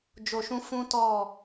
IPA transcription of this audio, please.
d͡ʒo˨ʃũ˦ fũ˦tɔ˦˨

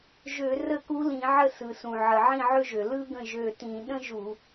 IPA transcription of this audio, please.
ʒø˧˩˧ rə˥˩ku˧˥lĩ˧˩˧ʕə˥˩ sɯ˩sũ˩ ʕə˩ʕĩ˥˩ʕø˥ʒø˩ lɯ˥ɡə̃˥˩ ʒø˧˩tĩ˧˩˧ ɗə̃˥ʒu˧˩˧

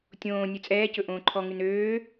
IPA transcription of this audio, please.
tʲõː nʲʉt͡sʼɛːcɵ ʔõːǃʰɔŋʉn øː

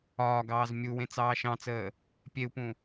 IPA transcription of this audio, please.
ɒːɡɑːz mʲuwẽ t͡sɑːʃɑ̃t͡səː | pʲeu̯pũ

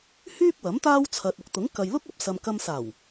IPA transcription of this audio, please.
hyː˥k̚wɐ˨˥m t̪aː˥wt͡sʰɐ˨t̚ʊ˨k̚ t̪ʊ˨˥ŋ kɐ˨jlʊ˥k̚ɐ˨p̚ sɐ˨mkɐ˧msaː˨˩w

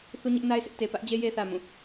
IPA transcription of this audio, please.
θu˦ɲɪ˦ʔna˦ɪ̯sʰɪ˦ʔ te˨pä˦ʔd͡ʑe˦ je˦θä˨ mũ˦˨

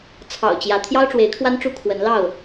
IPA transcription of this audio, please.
t͡sʰɑ̰˨˩ʊ̯t͡ɕjä˨˦ t̪ʰjɑ˦ʊ̯ʈ͡ʂwe˨˦ɪ̯kʰwa˦nʈ͡ʂu˦ kʰwə˨˦nlɑ˥˨ʊ̯

